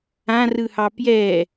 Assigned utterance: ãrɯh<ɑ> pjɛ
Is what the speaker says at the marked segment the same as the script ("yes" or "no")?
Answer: yes